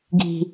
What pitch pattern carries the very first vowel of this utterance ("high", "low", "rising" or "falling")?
high